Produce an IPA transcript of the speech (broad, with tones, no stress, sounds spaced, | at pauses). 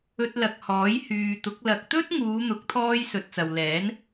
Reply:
ɵ˧ t̚ l ɐ˨ k̚ h ɔː˨˥ j h yː˨ t̪ ʊ˨˥ k̚ l ɐ˨ k̚ t̪ ɵ˥ t̚ ŋ uː˨˧ n̪ ʊ˨˥ k̚ t̪ʰ ɔː˧ j s ɵ˨ t̚ t͡s ɐ˨ w l ɛː˨˥ n